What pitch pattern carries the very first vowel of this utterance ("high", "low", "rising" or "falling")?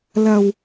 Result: low